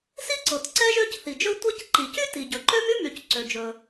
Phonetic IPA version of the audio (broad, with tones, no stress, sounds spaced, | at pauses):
s i˥ ǀ ɤ˩ t ǀ ɛ˥ ʒ ø˥ c θ i˩ d͡ʒ ɵ˥ tʷ i˥ c ǃ i˩ c y˥ t i˩ ɟ ɵ˩ ǃ ø˥ m y˥ m y˩ c ǀ ø˩ d͡ʒ ɵ˩